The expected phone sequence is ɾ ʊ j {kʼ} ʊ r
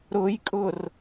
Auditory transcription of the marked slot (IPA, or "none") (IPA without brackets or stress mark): kʼ